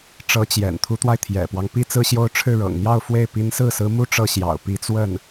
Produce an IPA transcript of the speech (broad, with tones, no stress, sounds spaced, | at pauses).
ʈ͡ʂ ɤ˧˥ t͡ɕ j ɛ̰˨˩ n t̪ʰ u˧˥ t̪ w a˧ ɪ̯ t̪ʰ j ɛ̰˨˩ p w ɑ˦ ŋ p i˥ t͡s ɹ̩˥˧ ɕ j o˥˧ ʊ̯ ʈ͡ʂʰ ɻ̩˥˩ ɻ ɤ̰˨˩ ŋ n̪ j ɑ˥˧ ʊ̯ f w e˥˩ ɪ̯ p i˧˥ n s ɹ̩˥˩ s ɹ̩˧˥ m u˥˧ ʈ͡ʂ ɤ˥˩ ɕ j ɑ̰˨˩ ʊ̯ p i˧˥ t͡s w ə˥˩ n